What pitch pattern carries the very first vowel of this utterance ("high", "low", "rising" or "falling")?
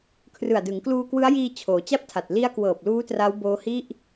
low